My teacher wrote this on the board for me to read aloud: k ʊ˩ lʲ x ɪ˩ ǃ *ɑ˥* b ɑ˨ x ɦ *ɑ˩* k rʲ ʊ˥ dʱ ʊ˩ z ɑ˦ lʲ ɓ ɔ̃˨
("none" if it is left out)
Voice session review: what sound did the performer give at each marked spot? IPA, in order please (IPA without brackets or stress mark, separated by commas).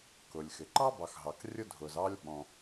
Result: ɑ˥, ɑ˩